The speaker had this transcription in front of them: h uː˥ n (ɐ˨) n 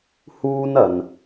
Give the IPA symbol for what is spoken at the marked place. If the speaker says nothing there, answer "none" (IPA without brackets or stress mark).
ɐ˨